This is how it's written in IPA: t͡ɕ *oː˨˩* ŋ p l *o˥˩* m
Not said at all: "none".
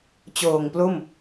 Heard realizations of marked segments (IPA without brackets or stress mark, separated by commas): oː˨˩, o˥˩